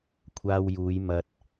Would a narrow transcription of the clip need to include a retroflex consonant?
no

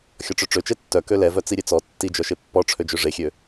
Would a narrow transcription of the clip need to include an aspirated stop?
yes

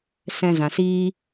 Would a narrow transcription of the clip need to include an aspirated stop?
no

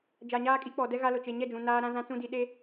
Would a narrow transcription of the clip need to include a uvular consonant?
no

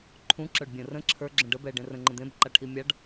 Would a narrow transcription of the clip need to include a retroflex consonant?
yes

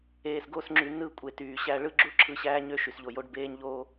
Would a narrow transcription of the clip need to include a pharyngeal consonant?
no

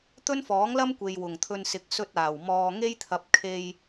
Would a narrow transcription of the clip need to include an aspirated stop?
yes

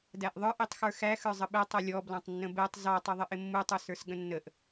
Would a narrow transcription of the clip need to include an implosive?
yes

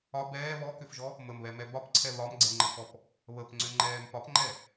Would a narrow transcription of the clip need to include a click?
yes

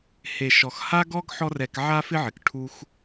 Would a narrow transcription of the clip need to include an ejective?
no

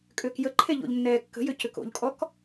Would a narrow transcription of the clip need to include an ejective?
yes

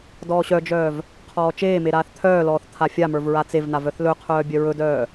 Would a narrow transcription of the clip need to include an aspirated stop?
yes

